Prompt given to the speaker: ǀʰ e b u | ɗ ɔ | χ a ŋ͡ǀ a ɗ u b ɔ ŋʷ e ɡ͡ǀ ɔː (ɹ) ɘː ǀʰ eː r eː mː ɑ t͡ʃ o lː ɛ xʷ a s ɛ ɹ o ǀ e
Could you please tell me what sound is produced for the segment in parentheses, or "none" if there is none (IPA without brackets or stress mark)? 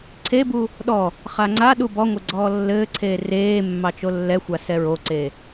lː